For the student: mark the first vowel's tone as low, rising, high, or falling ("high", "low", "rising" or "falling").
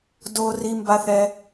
high